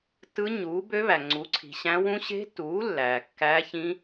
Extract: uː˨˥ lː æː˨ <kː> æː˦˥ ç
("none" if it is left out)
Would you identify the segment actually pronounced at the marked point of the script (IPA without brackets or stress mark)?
kː